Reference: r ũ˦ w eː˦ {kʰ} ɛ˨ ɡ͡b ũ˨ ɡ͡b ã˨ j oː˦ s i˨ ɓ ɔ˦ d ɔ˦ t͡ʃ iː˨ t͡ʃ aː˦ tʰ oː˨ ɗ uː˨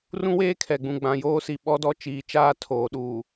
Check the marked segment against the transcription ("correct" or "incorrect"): correct